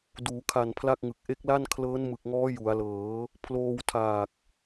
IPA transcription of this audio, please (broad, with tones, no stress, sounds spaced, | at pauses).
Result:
d uː˩˦ kʰ a˨˩ n pʰ l a˥˩ k̚ ŋ ɯ˨˩ k̚ ʔ e˦˥ k̚ l a˥˩ n kʰ l ɤː˦˥ n m ɯ˨˩ k̚ ŋ ɔː˦˥ j u˩˦ a̯ l ɤː˩˦ | pʰ l oː˧ w tʰ aː˨˩ k̚